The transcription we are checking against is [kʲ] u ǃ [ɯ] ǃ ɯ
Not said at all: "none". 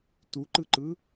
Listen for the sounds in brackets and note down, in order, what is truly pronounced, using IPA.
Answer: t, ɯ

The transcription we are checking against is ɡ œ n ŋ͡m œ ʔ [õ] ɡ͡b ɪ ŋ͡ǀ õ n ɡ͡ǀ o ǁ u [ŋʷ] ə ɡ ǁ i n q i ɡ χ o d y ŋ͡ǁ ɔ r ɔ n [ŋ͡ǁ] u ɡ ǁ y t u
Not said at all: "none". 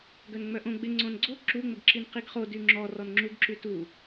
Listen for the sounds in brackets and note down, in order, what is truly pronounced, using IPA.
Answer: õ, ŋ͡m, ŋ͡ǁ

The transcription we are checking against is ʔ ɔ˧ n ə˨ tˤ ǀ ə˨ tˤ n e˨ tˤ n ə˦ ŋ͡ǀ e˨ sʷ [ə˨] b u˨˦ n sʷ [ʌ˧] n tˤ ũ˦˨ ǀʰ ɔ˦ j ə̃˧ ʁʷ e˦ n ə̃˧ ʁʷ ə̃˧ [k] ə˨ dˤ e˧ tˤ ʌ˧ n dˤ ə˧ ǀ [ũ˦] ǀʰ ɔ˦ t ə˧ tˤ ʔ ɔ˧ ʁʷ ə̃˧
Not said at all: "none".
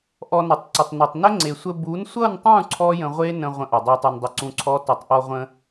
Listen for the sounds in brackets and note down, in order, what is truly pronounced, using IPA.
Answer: ə˧, ʌ˦˨, ʔ, ũ˧

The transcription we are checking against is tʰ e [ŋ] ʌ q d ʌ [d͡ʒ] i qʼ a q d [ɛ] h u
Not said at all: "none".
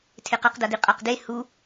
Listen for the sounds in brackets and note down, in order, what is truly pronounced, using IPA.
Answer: q, d, e

